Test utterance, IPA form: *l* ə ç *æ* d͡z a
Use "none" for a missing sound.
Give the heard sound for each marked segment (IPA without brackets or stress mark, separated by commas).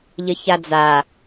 ʎ, a